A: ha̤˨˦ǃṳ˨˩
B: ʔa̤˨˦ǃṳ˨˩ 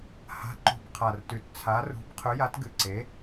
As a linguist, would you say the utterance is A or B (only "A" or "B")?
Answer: A